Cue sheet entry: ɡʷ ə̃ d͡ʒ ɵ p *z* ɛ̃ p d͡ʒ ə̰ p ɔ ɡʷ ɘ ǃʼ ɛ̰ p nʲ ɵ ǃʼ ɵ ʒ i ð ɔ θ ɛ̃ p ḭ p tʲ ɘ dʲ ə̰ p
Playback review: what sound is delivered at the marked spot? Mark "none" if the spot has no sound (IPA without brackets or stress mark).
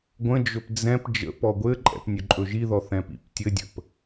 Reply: d͡z